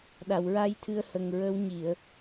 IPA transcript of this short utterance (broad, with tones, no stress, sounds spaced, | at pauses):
ɗ a˨˩˨ w ɹ a˧ j t̪ʰ ɨ˧ ə̯ h ə˨˩ ŋ ɹ ə˧˥ w ɲ i˨˩˨ ə̯